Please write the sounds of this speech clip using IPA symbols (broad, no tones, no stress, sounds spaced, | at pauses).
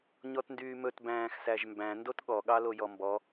ɲ ɔ t n d yː m ɵ t b æ̃ː x s æ ʒ m b æ̃ n d o t ɠ ɔ ɠ ɑ l o j ɔ m b ɔ